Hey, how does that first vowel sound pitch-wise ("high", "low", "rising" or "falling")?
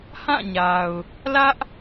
falling